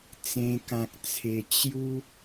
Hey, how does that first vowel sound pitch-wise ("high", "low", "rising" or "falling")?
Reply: high